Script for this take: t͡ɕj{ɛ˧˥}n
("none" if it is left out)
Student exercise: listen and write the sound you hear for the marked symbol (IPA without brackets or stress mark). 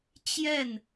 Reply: ɛ˥˩